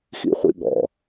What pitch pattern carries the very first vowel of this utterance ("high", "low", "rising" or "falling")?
high